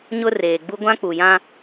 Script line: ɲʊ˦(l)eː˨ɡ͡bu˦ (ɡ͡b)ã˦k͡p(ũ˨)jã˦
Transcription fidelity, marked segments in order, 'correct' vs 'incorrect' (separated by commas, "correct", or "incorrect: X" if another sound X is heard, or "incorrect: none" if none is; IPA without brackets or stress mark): incorrect: r, incorrect: ɡʷ, incorrect: u˨